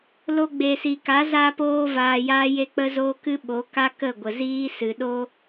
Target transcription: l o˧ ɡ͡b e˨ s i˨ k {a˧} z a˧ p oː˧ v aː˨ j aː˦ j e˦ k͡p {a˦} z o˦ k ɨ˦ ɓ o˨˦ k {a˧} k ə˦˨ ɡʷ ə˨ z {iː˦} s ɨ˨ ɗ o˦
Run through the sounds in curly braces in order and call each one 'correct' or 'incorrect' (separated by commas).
incorrect, incorrect, incorrect, correct